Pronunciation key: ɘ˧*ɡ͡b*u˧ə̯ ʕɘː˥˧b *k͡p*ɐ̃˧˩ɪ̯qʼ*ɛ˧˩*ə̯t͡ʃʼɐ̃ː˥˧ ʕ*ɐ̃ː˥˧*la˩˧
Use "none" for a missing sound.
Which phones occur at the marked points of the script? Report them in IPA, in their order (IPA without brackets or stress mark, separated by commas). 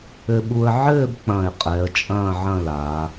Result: ɓ, k͡p, ɛ˩˧, ɐ̃˥˧